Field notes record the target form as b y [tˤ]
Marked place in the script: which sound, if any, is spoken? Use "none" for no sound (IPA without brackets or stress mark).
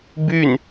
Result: n